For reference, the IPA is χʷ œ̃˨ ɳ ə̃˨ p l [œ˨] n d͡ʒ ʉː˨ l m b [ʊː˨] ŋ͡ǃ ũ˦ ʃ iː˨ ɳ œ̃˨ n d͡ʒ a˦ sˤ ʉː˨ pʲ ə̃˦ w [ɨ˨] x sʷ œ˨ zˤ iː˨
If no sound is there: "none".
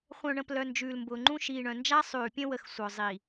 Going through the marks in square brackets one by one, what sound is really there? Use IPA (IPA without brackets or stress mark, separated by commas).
œ˨, ʊː˨, ə˨